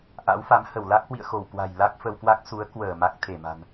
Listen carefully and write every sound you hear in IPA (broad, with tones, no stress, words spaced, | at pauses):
ʔa̰˧˥wfa˨˦m hə˧˩wla˦˥k̚hwḭ˧˨ə̯xo˧˩w kwa̤˨˩j la˦˥k̚ fə˧wkwa˦˥k̚ su˨˦ə̯ kwəː˧˩ ma˦˥k̚ t̪ʰe˧˩ma̤˨˩n